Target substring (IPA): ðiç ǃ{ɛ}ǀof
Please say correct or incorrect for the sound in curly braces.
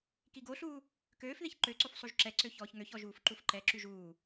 incorrect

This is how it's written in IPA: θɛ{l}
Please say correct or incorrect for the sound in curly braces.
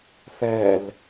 correct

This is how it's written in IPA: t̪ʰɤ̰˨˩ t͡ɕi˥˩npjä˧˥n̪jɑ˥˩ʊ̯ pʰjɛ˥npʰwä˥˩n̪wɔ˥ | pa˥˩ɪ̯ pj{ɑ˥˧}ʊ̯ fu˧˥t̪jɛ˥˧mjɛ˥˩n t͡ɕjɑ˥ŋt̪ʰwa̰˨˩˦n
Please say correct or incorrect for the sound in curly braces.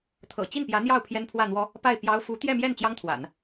incorrect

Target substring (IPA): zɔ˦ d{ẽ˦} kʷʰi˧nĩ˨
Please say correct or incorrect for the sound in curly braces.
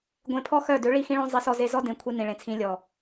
incorrect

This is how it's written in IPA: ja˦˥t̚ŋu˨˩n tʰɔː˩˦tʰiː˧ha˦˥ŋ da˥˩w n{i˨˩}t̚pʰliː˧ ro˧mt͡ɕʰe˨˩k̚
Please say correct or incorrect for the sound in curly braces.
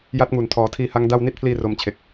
incorrect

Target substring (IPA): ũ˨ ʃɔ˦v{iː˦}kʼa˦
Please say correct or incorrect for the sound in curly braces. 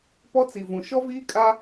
correct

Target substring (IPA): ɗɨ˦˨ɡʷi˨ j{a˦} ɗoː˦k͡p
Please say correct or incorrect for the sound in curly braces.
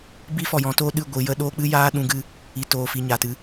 incorrect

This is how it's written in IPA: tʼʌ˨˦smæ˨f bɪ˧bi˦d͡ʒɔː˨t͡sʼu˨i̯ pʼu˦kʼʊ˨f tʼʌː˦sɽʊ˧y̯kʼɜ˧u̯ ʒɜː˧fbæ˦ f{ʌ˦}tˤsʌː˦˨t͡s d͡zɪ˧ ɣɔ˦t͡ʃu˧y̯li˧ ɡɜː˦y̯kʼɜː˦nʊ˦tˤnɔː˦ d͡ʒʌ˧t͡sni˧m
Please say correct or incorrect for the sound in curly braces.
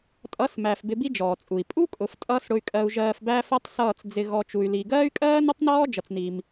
correct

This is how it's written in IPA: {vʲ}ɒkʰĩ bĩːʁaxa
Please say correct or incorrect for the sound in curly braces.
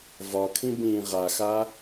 incorrect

